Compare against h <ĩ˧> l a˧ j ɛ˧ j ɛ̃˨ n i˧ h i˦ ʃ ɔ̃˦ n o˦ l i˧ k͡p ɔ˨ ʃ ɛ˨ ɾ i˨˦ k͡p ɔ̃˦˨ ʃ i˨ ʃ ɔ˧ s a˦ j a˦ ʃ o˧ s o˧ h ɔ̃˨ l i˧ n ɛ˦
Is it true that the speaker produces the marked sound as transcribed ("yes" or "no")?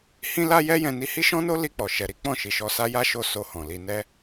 yes